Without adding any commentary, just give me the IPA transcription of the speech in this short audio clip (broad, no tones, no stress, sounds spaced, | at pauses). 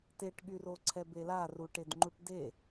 t e ʈ ɠ y r o ǀʰ ɛ b e l a r u ʈ e d ŋ͡ǃ u ʈ d e